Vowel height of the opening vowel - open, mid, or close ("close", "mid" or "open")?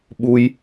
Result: close